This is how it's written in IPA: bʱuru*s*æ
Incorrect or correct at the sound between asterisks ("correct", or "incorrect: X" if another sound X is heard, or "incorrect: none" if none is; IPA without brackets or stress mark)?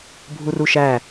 incorrect: ʃ